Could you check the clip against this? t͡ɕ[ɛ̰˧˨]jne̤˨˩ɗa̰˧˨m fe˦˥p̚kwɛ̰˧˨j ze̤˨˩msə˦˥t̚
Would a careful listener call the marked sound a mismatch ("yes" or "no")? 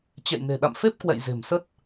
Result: no